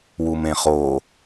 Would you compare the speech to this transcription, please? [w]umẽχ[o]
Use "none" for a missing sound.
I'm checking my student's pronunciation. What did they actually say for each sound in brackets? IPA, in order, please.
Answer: w, o

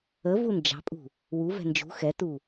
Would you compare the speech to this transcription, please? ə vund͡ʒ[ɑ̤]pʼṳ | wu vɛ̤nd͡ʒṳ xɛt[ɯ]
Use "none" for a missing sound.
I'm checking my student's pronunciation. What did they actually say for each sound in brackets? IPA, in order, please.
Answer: ɑ̤, u

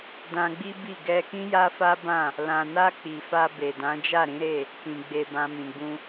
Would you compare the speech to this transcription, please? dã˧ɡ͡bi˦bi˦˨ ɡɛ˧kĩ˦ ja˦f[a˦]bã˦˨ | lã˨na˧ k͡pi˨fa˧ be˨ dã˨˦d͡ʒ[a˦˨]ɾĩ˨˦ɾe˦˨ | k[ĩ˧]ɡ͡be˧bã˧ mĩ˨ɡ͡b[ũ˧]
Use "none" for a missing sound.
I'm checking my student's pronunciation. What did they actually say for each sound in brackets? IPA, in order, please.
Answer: a˦, a˦˨, ĩ˨, ũ˧

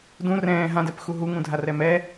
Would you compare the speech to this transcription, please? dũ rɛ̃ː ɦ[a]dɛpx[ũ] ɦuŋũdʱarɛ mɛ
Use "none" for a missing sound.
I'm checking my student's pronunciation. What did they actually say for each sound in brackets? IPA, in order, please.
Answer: ã, u

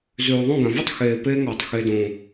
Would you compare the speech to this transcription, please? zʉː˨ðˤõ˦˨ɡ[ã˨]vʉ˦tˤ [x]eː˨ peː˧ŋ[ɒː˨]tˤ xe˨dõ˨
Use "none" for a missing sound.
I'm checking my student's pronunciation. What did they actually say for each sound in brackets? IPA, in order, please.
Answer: ã˨, x, ɒː˨

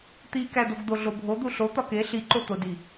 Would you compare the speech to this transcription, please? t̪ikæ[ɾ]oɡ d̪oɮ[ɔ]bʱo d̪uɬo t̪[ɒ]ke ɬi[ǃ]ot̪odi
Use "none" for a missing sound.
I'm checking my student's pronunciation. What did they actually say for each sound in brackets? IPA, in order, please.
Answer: d̪, o, ɒ, ǃ

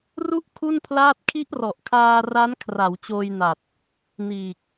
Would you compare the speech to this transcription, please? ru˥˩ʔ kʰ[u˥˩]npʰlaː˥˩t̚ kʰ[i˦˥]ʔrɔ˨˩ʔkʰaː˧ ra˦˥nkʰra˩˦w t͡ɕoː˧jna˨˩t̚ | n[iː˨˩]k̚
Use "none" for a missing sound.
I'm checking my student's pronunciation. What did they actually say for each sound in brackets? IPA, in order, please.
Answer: u˥˩, i˦˥, iː˨˩

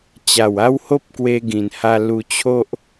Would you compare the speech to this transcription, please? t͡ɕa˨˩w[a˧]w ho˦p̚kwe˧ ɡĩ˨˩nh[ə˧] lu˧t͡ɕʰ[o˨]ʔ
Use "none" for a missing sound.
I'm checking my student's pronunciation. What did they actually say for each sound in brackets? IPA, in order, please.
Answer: a˧, a˧, o˦

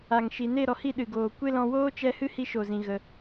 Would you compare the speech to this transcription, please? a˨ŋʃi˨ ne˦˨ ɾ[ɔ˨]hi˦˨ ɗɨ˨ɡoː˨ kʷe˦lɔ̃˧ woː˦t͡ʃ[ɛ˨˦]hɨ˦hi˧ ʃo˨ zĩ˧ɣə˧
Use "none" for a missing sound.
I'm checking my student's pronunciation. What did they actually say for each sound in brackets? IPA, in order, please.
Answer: ɔ˨, ɛ˧

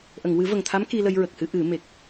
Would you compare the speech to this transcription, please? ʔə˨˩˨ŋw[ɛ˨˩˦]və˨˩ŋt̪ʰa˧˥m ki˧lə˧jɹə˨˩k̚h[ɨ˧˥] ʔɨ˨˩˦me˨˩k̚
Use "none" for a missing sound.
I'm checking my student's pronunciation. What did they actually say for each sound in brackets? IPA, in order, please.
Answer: ɨ˨˩˦, ɨ˧˥

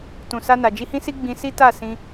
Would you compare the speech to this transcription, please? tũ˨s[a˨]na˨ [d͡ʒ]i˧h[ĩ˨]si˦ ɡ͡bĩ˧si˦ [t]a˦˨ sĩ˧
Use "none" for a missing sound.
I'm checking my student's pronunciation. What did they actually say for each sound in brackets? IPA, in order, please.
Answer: a˧, d͡ʒ, ĩ˦, t

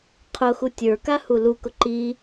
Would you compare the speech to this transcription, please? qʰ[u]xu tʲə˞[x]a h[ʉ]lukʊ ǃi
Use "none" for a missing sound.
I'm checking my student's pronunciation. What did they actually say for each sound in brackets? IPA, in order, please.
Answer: ʊ, k, u

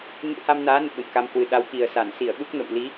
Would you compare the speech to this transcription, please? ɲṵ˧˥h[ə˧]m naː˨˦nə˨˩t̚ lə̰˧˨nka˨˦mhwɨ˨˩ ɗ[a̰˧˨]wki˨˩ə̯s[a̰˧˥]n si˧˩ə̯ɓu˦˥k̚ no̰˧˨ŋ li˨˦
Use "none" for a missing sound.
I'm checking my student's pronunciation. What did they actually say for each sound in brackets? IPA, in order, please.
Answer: a˧, a˨˦, a˧˩

